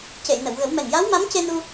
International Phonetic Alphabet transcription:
c e˨˩˨ j n ə˨˩˨ w ɣ ə˨˩˦ w m ɛ˨˩ ŋ j a˧˥ w m a˧˥ m c e˧ n u˧

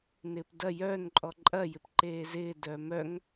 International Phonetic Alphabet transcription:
n ɪː p d ɐ j œː n ǃʼ ɔ ǃʼ ɐ j ɪ p ǃ eː z ɪː d œː m œ ŋ

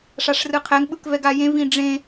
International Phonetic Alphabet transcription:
ʂ a ʂ r ɯ qʰ ɛ ŋ ɓ ɯ k v ɛ ɡ a j ẽ v ĩ ɖ͡ʐ ẽ

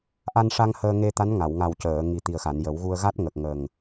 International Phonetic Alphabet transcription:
ʔ a˧ n ʂ a˧ ŋ h əː˧ ŋ e˧ t̪ a˧˥ n ŋ a˨˩˨ w ŋ a˨˩ w c əː˨˩˨ ŋ i˨˩ t̪ i˨˩ ə̯ x a˨˩˨ n j ə˨˩˦ w ɣ u˧ ə̯ ɣ a˦˥ t̚ ŋ ə˨˩ k̚ ŋ ə˨˩ ŋ

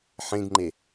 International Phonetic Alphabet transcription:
ħ ẽ ɡ ŋ͡ǃ e

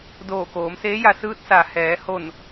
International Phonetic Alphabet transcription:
d oː˧˩ k oː˩˧ m s eː˧˥ j a˧ s ɯː˧˥ t̚ s a˩ h ɛː˩˧ h o˧˩ n

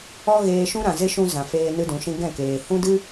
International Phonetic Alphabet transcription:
ɔ˦ ɣ eː˧ ʃ ũ˦ ɾ ã˨ z e˦ ʃ ũ˧ z ã˨ f eː˧ n ɨ˦ d ũ˨˦ ʃ ĩ˦ ɡ ɛ̃˦˨ k eː˨ h ũ˦ d ɨ˦

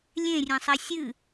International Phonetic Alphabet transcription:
lʲ ẽ rʲ ẽ sˤ e sʲ ɨ

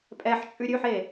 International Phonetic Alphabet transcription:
pʼ ɛ ħ t͡ʃʼ ʉ ɾʲ ʉ ħ e

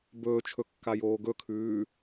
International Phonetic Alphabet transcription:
b ɵː t͡ʃʰ ɵ kː a j oː ɡ ɵ kʰ ʉː

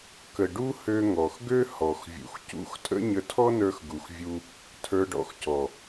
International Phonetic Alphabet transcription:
k ə˨ ɖ u˧ h ø˧ ŋ ɔ˨ x ɡ ø˦ h ɔ˨ x vʲ ṵ˨ x c ṵ˦ x tʼ ə̰˦ ɲ ə˧ tʰ ɔ˦ n ə˞˧ x ɡ u˨ x vʲ u˧ | tʰ ə˞˧ ɖ ɔ̰˧ x c ɔ˨

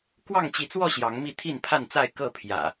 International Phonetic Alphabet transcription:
k w ɑ˥˨ ŋ t͡ɕ i˨˦ t͡s w ɔ˥˨ ɕ j ɑ˨˦ ŋ m i˥˨ t̪ʰ i˥˨ n pʰ a˥˨ n t͡s a˥˨ ɪ̯ k ɤ˥˨ pʰ j ä̰˨˩

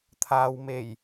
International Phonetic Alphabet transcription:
t̪ʰ aː˨ w m e˨˩ j

